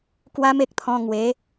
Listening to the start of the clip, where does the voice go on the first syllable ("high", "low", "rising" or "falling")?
high